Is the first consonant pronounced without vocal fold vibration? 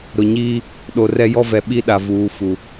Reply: no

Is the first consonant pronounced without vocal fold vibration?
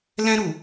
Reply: no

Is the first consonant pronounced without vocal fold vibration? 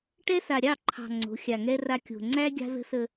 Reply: yes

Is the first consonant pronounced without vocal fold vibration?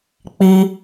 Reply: yes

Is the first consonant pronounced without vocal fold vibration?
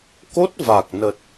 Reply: yes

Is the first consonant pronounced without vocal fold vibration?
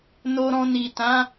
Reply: no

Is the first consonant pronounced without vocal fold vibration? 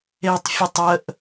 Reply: yes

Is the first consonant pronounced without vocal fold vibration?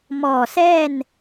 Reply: no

